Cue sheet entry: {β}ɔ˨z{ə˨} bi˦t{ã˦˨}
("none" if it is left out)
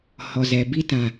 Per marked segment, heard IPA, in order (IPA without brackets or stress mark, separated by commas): h, ɛ˨, ã˨